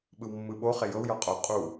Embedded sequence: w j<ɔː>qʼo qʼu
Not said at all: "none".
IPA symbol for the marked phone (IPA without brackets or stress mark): ɔ